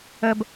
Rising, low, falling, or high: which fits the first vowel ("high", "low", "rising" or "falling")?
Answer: low